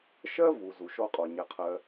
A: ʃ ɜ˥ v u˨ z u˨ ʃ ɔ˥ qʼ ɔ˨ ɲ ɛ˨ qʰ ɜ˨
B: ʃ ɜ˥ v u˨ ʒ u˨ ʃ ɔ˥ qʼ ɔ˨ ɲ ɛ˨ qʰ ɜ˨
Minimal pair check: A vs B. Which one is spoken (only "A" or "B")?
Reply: A